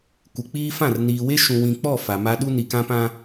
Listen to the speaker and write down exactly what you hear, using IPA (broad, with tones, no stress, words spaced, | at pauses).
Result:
kʷɪ˨k͡piː˦ fã˦˨rniː˨we˦ ʃũ˨wĩ˨k͡pɔ˦˨ fa˨ma˦ ɗu˦ni˨kã˦pã˦